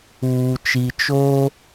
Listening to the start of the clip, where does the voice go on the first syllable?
low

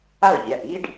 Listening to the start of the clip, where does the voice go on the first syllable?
falling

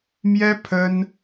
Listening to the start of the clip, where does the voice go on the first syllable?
high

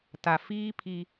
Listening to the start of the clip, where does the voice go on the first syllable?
low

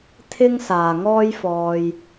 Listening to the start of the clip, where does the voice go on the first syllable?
high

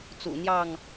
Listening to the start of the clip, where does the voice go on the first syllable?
low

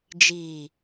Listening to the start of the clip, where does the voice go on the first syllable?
low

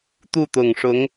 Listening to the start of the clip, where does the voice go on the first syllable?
falling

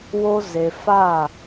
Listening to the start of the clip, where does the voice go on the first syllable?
high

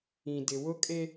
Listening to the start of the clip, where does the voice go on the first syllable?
low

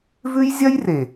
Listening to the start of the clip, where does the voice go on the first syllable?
high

